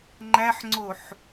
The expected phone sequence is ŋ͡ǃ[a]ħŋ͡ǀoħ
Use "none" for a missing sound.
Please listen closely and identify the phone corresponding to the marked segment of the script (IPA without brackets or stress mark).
æ